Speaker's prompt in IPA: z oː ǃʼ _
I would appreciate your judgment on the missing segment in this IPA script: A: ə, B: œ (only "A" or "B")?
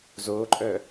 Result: B